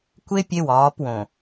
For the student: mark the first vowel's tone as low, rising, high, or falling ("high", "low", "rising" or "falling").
high